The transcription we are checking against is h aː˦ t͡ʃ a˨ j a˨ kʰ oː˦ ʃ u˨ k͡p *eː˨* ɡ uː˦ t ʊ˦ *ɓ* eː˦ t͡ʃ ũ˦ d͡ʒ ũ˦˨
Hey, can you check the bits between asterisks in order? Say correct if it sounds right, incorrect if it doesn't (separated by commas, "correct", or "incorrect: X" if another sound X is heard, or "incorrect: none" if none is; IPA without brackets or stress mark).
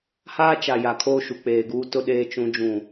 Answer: correct, incorrect: ɗ